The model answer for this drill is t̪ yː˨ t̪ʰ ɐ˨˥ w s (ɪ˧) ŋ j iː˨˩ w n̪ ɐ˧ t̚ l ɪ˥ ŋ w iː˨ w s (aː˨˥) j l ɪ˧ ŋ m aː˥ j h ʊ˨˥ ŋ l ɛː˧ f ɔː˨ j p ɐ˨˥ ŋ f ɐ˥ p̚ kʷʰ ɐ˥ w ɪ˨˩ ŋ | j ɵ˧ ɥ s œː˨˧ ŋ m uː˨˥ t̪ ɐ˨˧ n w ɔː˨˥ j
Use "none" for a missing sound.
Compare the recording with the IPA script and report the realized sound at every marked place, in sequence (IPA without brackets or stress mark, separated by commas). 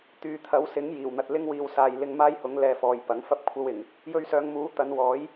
ɪ˨˥, aː˨